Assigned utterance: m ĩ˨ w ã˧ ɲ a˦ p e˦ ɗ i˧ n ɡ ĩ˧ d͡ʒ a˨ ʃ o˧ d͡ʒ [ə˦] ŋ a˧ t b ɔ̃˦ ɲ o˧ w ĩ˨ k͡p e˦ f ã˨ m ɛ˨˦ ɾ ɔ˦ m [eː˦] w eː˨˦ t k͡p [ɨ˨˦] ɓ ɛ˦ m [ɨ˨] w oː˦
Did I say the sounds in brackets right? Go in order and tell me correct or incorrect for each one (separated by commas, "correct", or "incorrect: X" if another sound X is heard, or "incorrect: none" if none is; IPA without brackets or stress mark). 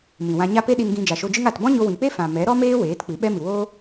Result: incorrect: ɨ˦, correct, correct, correct